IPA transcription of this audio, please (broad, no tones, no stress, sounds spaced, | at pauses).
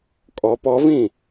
kʼ ɔ p ɔ v ĩ